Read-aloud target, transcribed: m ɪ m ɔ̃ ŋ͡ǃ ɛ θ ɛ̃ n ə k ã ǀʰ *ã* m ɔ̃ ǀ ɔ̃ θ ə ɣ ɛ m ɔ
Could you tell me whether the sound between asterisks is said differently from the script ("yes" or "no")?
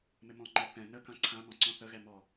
no